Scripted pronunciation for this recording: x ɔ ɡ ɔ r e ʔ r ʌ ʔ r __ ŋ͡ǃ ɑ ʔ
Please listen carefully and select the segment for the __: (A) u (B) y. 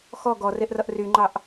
B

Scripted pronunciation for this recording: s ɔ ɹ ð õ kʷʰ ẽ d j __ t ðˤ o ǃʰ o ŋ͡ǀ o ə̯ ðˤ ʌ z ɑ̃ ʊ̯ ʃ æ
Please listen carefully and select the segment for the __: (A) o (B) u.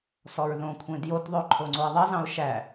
A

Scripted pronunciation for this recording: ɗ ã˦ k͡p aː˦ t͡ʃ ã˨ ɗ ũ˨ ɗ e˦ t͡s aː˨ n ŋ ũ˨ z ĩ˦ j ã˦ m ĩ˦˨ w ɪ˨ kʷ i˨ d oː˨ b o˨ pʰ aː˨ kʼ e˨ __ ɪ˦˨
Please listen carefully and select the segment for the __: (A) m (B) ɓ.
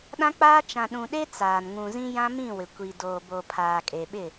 B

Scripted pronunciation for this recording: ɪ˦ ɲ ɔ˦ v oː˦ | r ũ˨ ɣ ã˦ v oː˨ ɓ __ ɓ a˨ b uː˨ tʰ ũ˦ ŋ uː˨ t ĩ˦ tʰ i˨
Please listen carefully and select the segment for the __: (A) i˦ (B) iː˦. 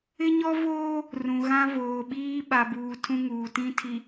B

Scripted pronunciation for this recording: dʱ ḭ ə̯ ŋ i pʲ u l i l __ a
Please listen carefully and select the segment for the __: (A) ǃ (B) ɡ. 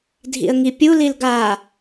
B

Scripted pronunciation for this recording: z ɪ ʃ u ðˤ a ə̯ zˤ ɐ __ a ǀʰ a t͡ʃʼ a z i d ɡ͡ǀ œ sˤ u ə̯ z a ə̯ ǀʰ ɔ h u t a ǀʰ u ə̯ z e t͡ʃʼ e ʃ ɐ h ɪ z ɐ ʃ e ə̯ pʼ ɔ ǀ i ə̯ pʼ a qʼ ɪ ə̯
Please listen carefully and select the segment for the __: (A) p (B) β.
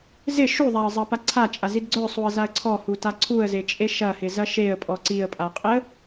A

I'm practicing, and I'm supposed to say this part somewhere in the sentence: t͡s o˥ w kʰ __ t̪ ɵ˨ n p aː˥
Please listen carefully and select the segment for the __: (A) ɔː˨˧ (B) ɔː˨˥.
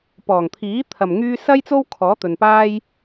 B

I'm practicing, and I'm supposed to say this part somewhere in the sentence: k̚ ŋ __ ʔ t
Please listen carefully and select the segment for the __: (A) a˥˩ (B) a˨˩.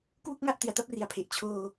A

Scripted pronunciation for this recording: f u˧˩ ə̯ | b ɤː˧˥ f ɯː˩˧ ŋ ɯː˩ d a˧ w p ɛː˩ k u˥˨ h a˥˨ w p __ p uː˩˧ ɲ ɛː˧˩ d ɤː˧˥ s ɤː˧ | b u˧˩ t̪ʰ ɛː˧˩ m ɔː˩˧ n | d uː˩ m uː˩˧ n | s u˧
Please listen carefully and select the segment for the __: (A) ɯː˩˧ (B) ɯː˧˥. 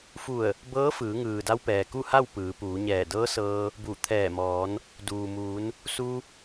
A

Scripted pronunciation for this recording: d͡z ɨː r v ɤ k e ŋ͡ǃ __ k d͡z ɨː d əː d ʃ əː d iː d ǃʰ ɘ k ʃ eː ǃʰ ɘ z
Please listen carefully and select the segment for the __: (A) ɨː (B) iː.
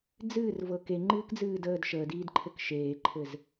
A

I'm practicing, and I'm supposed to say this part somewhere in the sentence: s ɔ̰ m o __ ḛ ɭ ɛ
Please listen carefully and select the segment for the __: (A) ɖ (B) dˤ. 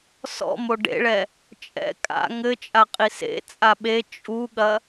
A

